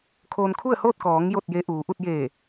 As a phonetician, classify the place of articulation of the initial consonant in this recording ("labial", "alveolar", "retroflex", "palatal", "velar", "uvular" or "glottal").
velar